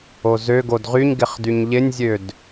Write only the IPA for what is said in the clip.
ozøɡod ʁyɲɡɪχ dyɲʎɪnʲzʲød

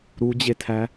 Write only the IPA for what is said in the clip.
ɾud͡ʑetʰæ

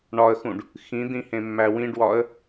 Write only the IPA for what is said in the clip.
ɳɒə̯xũɖ | xĩd̪ĩ hẽmːæwĩɖwɒə̯

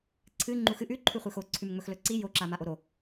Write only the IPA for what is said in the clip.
ǀʰɨ ŋ͡ǃuxɨ ʔʉ ǃʰʉχʷexo ǀʰʉmŋ͡mɵxlɵǀi jo ǁamaʔoɾo

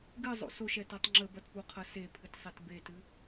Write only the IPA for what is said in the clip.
ɡɨzˤo̰ soʃɛtɛtˤ ŋ͡ǁəbɐtpuqʰɐ sepʰɨtsˤet betɨ

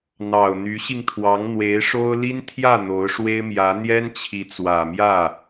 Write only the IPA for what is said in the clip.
n̪ɑ˨˩ʊ̯n̪y˧˥ɕi˧ŋt̪ʰwɑ˧˥ŋ n̪we˧˥ɪ̯ʂo˥ʊ̯ li˥nt̪ʰjä˥˩ n̪o˧˥ʊ̯ʂwe˥ɪ̯ mjä˧˥ n̪jɛ˥nt͡ɕʰi˧˥t͡swä˨˩mjä˥˩

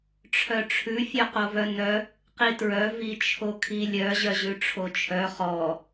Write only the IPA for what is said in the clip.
ʈ͡ʂʰœʈ͡ʂʰʉ fʲœqovœnœ | qitɹœ vit͡ʃʰokʰilʲœ ʑœʑʉʈ͡ʂʰot͡ʃʰœ χɔ

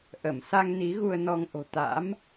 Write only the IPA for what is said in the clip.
ʔə˧˩msa˧ŋ ni˨˦ɣu˧ə̯nɔ˧ŋ ʔo̤˨˩t̪a̰˧˥m

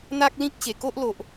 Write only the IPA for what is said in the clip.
n̪a˦k̚lĩ˦k̚ɕe˨˩ko˦ʔ lo˨ʔ

